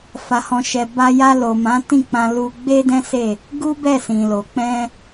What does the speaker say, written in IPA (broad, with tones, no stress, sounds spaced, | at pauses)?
f a˨ h ɔ̃˨ ʃ ɛ˨ b a˧ j a˧ l o˨ m ã˨˦ t ĩ˦˨ k͡p ã˧ l u˧ ɡ͡b e˦ d ɛ̃˦ s e˦˨ | ɡ u˦ b ɛ˦˨ s ĩ˨ l o˨ k͡p ɛ̃˧